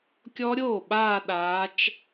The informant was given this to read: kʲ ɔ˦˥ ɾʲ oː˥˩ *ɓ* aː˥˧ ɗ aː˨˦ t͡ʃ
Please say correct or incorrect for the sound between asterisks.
correct